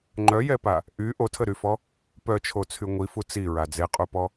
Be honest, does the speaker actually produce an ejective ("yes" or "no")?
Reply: yes